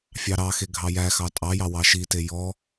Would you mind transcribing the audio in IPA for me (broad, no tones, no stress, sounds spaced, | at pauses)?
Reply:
fʲ ɑ ɾ ɑ x e ɡʱ ɑ j æ x ɑ tʼ ɑ j ɑ w ɑ ʃ i t e j ɔ